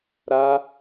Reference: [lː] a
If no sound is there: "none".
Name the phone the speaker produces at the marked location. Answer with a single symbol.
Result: ɾ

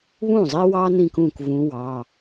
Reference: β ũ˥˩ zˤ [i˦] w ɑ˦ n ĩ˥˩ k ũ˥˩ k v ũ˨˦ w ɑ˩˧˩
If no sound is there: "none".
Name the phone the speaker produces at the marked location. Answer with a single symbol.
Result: i˦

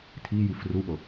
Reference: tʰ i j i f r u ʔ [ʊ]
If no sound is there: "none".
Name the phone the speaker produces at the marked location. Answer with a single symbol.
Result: ʊ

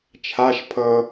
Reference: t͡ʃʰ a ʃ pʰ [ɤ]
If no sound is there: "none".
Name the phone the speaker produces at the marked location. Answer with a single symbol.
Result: ɤ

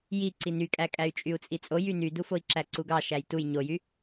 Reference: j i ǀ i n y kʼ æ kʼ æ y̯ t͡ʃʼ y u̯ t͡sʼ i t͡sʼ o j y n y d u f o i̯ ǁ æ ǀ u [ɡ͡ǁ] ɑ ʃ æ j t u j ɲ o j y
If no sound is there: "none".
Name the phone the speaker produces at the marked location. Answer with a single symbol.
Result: ɡ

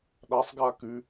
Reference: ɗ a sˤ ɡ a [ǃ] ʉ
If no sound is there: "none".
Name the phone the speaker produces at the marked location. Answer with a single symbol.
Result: k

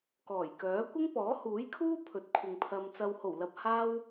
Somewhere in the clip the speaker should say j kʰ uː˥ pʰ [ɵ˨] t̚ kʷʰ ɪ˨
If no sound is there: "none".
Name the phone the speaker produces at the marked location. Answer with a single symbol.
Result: ɵ˨˥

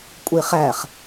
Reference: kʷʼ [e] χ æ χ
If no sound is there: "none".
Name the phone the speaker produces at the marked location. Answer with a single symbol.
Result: e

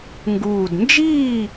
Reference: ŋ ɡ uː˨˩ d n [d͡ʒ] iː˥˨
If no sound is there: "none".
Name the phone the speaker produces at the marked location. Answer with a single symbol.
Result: d͡ʒ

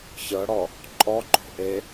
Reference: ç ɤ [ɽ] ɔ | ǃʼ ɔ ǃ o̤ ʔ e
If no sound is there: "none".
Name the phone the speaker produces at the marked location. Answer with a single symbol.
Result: ɽ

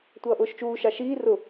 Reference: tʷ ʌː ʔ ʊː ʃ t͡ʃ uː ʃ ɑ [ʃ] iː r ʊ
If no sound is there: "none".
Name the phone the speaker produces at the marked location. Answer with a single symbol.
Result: ʃ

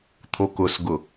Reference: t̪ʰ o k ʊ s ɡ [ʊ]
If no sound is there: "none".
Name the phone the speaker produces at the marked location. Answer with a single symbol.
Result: ʊ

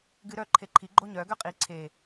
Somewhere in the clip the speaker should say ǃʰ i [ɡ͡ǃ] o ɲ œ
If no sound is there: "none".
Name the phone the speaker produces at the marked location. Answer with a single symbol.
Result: ɡ͡ǃ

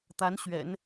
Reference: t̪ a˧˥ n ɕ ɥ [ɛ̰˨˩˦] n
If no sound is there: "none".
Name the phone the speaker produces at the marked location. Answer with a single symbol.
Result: ɛ̰˨˩˦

